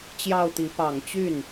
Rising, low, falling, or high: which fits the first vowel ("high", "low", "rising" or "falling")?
falling